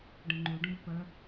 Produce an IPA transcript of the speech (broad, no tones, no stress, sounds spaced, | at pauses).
ɖ ə̃ ŋ͡ǃ u ɖ ũ b p ə